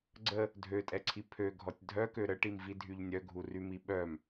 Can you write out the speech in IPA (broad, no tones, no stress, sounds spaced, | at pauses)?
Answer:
ɡ͡ǀ ə | dʱ ø tʼ ɛ ǀʰ i pʰ ø ɡʱ ɔ tʲ dʱ œ k ø ɾ ə ʈ i m v i dʱ y ʎ nʲ œ ɡʱ u r y m i ɓ œ m